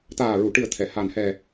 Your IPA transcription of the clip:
t̪aː˨˩ɹu˨˩˨ʈɨ˨˩ə̯ t̪ʰɛ˨˩˨ha˨˩nhɛ˨˩

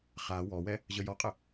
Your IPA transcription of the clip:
χa wɔwɛ | ʑəjɔqʼə

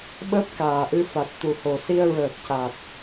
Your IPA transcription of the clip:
ɓəː˦˥p̚ kaː˨˩ʔɨ˧fa˨˩t̚ t̪u˨˩ho˨˩si˧ə̯ɹəː˨˩k̚ ca˨˩t̚

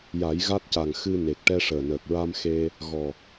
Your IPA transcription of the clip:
ja˨˩˦jɣa˦˥t̚ca˨˩ŋ xɨ˧ ne˨˩k̚ʈɛ˧ʂəː˨˩nəː˨˩k̚ ɹa˧mxe˧ | ɣɔ˨˩

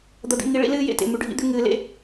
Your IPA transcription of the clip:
d̪ɐ˨d̪ḭ˨ŋi˨ ɭḭ˦ lɨː˦jḛ˦˨tḛ˨ mʉ˨ɖʱḭ˦d̪ʉ˦ ŋɨː˨lḛ˦

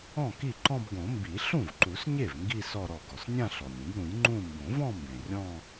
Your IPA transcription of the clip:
ɔ̃˥˩ki˥˩ǃɔ̃˥˧b ɡõ˨˩˦mbi˨˩˦ ɬũ˥˩vǃu˨˩˦sɲe˥˩v ŋɡi˥˧ sɔ˥˧ɾɔ˥˩ ɡɔ˩snʲã˥˧ ɬɔ˩nʲĩ˨˩˦b ɾũ˨˩˦j ŋ͡ǃũ˥˧ mbõ˨˩˦vɔ̃˥˧mbẽ˩ rʲɔ̃˥˧

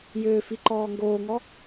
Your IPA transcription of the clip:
jʏːfi ǃɔːŋɡoːŋɔ

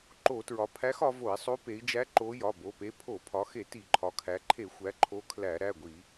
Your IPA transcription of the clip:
ǃo˧˩˧tɹɒ˩˧ pʰæ˧˥xɒ˩˧vo˧˩˧i̯sˤo˧˥ pe˩˧i̯d͡ʒæ˧˥ ǃo˧˥ jɒ˩˧˩bo˩˧˩pe˧˥ pʰo˧˩˧pʰɒ˩˧xe˧˩˧ ti˧˩˧ǃʰɒ˩˧kʰæ˩˧ ǃʰe˧˩˧xʷæ˩˧ ǃʰo˧˥kʰlæ˧˩˧ ɾæ˩˧˩ɡʷi˧˩˧

